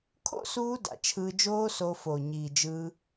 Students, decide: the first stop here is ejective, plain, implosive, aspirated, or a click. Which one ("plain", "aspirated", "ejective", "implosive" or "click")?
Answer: aspirated